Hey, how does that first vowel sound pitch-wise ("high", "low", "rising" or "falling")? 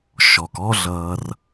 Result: low